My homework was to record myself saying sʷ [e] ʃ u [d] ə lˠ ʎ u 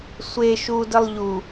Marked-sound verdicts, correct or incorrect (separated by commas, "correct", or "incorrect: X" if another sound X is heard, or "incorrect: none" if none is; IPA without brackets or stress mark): correct, correct